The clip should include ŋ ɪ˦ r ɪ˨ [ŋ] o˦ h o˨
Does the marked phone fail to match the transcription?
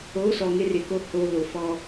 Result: yes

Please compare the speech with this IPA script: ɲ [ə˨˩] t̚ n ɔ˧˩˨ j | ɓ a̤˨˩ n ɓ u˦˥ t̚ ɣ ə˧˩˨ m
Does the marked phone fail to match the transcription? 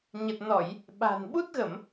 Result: no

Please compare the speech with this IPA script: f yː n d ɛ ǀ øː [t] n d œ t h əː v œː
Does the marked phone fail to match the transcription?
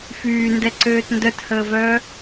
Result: no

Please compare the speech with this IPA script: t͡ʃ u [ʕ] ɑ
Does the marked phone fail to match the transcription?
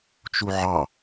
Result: no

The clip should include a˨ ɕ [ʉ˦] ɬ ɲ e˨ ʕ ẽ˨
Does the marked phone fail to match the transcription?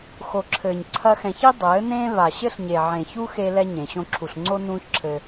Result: yes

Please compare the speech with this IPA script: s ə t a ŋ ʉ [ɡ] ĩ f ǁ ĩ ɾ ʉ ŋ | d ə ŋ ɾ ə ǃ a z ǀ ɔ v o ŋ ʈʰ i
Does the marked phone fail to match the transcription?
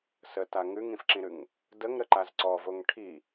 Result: yes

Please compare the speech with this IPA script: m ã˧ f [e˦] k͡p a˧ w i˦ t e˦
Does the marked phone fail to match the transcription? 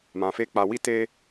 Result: no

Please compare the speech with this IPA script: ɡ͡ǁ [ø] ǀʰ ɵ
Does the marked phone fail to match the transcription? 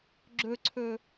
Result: yes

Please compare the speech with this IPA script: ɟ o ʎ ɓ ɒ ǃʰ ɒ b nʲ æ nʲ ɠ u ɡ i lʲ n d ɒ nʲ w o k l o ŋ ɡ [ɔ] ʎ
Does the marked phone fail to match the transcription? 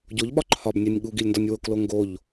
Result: yes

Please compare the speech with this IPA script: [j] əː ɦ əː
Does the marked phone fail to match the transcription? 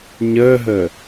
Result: yes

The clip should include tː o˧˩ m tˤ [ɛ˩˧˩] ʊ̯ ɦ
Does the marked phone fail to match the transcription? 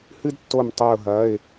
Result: yes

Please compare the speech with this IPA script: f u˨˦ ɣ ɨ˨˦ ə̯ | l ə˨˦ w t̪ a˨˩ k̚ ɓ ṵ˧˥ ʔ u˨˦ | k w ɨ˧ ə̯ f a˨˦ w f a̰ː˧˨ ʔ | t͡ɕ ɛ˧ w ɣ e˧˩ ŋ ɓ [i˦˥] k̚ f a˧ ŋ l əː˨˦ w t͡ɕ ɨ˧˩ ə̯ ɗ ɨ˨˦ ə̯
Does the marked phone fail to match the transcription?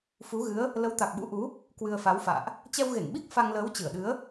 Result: no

